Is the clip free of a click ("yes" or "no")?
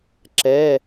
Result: no